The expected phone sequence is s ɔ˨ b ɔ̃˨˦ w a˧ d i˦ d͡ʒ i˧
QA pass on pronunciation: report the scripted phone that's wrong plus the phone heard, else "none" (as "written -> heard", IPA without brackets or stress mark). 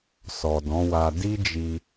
b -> d